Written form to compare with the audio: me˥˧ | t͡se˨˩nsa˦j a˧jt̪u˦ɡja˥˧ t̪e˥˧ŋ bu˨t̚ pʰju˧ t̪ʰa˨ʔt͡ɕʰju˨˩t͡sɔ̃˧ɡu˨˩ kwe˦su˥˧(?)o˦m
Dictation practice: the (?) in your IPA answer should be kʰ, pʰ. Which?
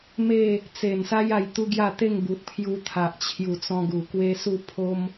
pʰ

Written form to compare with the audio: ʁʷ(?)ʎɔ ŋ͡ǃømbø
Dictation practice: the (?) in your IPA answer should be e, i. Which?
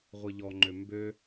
i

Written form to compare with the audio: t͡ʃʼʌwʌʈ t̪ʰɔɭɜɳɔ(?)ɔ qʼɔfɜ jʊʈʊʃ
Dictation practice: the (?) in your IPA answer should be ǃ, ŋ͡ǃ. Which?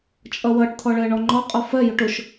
ŋ͡ǃ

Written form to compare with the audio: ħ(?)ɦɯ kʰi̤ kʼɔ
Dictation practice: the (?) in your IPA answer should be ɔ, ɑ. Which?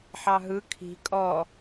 ɑ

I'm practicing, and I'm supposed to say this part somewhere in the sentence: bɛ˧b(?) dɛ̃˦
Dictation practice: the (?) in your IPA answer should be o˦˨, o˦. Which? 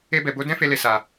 o˦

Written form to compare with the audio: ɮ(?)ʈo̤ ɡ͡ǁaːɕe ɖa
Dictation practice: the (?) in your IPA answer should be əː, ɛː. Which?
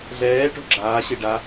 ɛː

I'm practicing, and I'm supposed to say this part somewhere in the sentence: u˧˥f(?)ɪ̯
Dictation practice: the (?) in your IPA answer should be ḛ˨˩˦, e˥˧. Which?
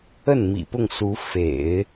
ḛ˨˩˦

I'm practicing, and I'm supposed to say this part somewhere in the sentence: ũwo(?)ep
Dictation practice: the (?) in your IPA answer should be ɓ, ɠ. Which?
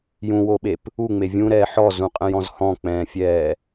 ɓ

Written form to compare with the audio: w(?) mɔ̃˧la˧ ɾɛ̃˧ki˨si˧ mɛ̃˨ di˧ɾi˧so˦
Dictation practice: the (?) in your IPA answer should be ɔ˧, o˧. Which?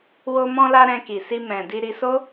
o˧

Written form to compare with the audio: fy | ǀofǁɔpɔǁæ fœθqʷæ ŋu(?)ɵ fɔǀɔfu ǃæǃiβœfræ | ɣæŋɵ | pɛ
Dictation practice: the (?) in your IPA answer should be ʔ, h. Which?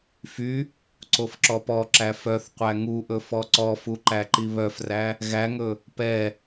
ʔ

